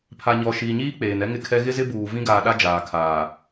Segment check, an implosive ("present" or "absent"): present